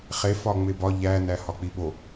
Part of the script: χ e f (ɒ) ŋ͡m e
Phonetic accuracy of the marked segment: correct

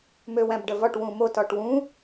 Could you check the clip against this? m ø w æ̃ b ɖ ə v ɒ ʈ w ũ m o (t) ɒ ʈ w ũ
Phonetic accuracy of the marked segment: correct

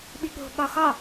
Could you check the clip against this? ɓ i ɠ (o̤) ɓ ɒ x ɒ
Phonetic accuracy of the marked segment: correct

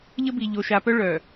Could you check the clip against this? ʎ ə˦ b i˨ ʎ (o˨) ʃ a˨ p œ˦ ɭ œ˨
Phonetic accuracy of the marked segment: correct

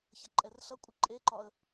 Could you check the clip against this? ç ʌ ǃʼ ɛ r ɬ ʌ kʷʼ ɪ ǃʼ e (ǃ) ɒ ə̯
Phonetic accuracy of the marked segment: correct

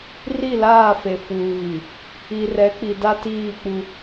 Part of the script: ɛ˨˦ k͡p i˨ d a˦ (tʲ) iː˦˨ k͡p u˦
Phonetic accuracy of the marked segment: incorrect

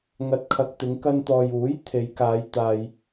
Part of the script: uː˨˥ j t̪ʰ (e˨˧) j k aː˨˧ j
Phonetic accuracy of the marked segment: correct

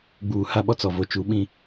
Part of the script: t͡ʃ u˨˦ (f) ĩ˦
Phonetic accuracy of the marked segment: incorrect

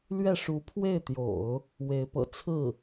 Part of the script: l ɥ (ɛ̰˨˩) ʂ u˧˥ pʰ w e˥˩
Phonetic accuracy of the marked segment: incorrect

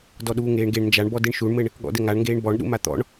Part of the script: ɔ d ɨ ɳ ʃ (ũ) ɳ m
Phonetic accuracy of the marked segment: incorrect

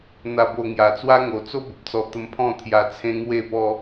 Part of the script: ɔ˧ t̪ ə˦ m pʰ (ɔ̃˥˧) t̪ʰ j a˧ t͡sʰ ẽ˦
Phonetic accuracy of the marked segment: correct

